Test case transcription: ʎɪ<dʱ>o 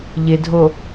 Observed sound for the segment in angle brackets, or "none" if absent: dʱ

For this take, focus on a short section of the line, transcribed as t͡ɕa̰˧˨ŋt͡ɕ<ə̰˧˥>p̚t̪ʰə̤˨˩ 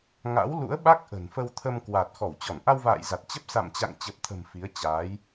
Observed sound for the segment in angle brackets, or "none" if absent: ə˨˩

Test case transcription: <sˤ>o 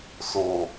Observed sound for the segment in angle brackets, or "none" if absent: s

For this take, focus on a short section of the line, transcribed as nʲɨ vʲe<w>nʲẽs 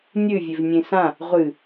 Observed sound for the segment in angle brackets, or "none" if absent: v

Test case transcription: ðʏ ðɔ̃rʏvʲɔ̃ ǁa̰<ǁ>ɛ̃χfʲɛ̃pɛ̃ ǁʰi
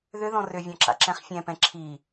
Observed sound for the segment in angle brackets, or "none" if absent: ǁ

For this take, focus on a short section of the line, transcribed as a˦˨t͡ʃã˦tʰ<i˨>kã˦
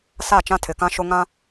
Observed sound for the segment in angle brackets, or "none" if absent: ɪ˨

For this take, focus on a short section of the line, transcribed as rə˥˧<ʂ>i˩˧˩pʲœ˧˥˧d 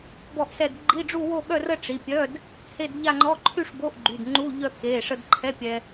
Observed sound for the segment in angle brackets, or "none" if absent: ʈ͡ʂ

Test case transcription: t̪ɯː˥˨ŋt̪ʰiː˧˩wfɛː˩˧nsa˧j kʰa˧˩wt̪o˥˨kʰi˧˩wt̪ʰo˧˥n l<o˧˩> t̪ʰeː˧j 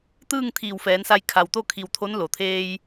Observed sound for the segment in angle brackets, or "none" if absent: o˩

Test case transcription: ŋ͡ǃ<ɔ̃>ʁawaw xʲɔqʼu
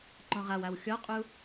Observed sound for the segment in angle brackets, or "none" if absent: ɔ̃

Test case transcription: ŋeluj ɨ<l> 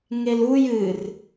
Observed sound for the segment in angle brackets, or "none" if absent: r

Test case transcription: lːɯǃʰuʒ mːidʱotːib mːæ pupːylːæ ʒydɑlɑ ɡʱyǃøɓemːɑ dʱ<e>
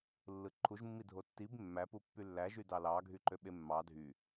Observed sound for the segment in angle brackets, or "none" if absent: y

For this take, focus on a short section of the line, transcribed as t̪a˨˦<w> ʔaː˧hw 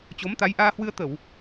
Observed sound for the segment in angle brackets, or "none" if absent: j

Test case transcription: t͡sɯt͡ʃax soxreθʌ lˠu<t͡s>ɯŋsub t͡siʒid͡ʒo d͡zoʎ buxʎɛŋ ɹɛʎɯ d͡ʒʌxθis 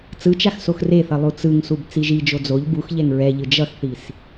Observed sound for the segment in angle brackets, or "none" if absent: t͡s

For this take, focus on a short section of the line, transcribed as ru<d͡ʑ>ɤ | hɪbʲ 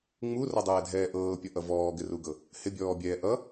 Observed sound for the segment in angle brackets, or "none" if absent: ɡ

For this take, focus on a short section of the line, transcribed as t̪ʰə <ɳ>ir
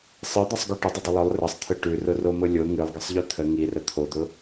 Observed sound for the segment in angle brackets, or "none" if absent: ŋ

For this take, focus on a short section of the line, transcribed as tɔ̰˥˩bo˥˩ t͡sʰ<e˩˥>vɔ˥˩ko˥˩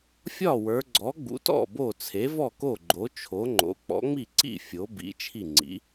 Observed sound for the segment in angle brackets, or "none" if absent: e˩˥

